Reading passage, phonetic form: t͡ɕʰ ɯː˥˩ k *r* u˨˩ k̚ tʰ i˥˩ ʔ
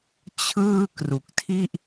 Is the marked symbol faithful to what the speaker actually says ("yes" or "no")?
yes